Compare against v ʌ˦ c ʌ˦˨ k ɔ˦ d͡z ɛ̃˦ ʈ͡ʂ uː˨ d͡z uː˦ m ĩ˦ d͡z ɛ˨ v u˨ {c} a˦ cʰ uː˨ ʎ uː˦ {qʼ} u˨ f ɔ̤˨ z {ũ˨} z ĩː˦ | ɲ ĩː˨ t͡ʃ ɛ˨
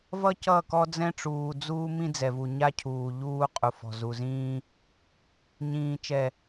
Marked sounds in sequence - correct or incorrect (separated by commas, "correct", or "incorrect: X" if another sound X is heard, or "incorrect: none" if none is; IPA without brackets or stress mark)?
incorrect: ɲ, correct, incorrect: u˨